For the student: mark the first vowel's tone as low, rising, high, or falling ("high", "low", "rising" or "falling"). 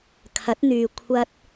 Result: rising